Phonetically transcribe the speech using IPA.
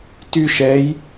t y ʃ ɛ j

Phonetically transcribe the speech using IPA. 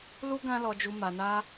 l u˦ ɡ ã˦ l ɔ˧ d͡ʒ u˧ m a˧ n a˦

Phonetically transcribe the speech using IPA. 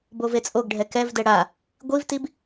b o v e t͡sʼ o ɡ ɖʱ ɛ k ɛ v d ɛ ɽ a | ɡʷ i v t i b

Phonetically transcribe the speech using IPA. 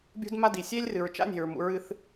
bʲ ṳ˦ d m a˦ d i˨ sʲ e˦ lʲ r ɨ˨ ɹ t͡ʃ a̰˦ nʲ e̤˨ ɹ m ṵ˨ ɹ ɨ˦ θ

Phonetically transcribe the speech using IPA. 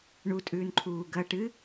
ɳ u tʼ ʉː n ǃʰ uː ɡ ɐ ʈ ɨ

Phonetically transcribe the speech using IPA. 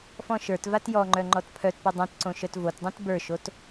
f ɔ̃ ʃ ə˞ t v a t j ɔ ŋ͡ǃ œ ŋ͡ǃ ɔ t pʰ œ t p ɤ dˤ œ̃ t ǀ õ ʃ œ t v o t dˤ õ t b ə˞ ʃ o t

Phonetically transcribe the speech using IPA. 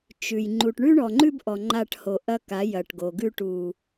t͡ʃ ʉ˨ j ŋ͡ǃ u˨ ʈ ɳ ʉ˦ ɳ ɔ˨ ŋ͡ǃ ʉ˦ b ʔ ɔ˨ ŋ͡ǃ a˦˨ ʈ h o˨ ʔ ɐ˦ k a˨˦ j ɐ˨ ʈ ɡ o˨ ɡ ʉ˦ ʈ u˨

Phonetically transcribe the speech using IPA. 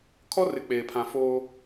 kʰ ɔ˦ r ɪ˨ k͡p eː˨ pʰ ã˨ f oː˦

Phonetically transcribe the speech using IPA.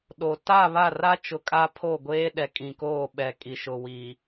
ɗ o˨ t a˦˨ β a˦˨ r a˦ t͡ʃ ʊ˨ kʼ a˦ pʰ o˦˨ ɡʷ eː˦ ɗ ɛ˨ kʼ ĩ˨ k oː˦˨ ɓ ɛ˨ kʼ i˨ ʃ ʊ˨ w i˨

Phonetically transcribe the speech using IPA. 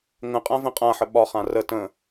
ŋ ə̃ qʼ ã v ə̃ qʼ ã ħ ə ɓ ɒ χ ã r ə t ə̃

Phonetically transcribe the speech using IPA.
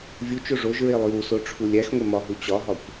vʲ u t͡ʃ o ʐ o ʒ ɹ e lˠ j u s o ʈ͡ʂʰ u lʲ æ x ŋʷ e m ɒ ɦ u t͡ɕ ɒ ɦ ɒ kʷ

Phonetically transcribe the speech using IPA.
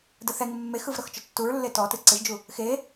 d ə θ ɛ ŋ ɪ mː e x ɯ v ɾ ɤ x t͡ʃ ɔ tː u ɹ lː e t ɔ t ɨ ǀ ɪ ʒ d͡ʒ u | x e

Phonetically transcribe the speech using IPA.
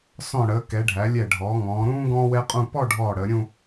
s ɔ̃˧˩ ɽ əː˩˧ k ɛ˩˧ ɖʱ æ˩˧ lʲ ɛ˧˩ ɖʱ ɔː˩˧ ŋ ɔ̃ː˩˧ ɾ ũː˥ ɡ ɔ̃ː˥ w ɛ˥ qʼ ũ˥˧ p ɔ˥˧ ɖʱ ɔː˧˩ ɽ əː˩˧ ɾʲ ũ˥˧

